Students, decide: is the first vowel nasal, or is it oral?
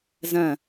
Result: nasal